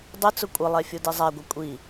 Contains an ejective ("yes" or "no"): yes